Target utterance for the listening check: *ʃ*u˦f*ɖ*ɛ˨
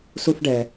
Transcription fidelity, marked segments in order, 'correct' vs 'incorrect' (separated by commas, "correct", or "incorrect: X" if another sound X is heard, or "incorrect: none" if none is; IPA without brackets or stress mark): incorrect: s, correct